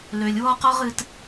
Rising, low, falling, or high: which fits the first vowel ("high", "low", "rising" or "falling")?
low